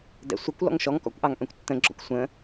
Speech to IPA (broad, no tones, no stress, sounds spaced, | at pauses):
d ɛ̰ sʷ ə kʷ l ɔ̰ ŋ ʃ ɔ ŋ k ɔ̰ kʷ ʔ ɑ ŋ ʔ œ̃ kʷ tː ə̃ ɡ͡ǁ ɔ̰ kʷ sʷ ə̃